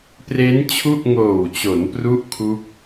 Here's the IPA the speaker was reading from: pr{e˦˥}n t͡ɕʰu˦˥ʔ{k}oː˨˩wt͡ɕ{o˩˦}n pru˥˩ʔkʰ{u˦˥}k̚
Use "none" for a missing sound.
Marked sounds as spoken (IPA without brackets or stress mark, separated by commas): e˦˥, ŋ, o˩˦, u˦˥